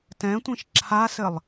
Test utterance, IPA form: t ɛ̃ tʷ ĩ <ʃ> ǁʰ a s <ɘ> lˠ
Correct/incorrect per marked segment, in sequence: correct, correct

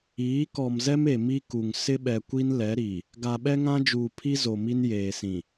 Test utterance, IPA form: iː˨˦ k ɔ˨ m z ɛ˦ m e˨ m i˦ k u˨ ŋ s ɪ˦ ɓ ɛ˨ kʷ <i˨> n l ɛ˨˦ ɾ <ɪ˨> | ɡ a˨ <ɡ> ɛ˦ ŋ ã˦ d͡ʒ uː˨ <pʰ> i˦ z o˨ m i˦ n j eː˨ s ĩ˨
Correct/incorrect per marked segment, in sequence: incorrect: i˦, incorrect: i˨, incorrect: ɓ, correct

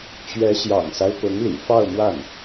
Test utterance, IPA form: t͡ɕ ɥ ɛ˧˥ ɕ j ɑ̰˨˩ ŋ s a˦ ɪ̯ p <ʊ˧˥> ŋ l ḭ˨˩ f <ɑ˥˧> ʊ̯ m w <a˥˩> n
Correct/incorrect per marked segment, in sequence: correct, correct, correct

